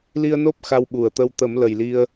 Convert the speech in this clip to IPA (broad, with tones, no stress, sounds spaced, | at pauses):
l i˧ ə̯ n o˦˥ p̚ x a˧ w ɓ u˨˩ ə̯ t̪ ə˧ w t̪ ə˨˩˦ m l ə˨˩ j l i˧ ə̯